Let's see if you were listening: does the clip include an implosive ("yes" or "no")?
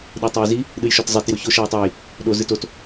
yes